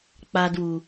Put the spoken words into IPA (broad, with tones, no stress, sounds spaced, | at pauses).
k͡p a˨ d w u˩